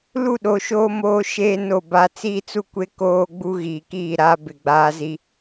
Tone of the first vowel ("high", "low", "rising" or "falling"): falling